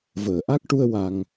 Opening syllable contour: low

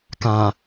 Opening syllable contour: low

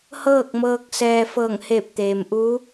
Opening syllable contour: falling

